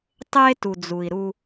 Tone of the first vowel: high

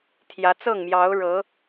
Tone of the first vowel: rising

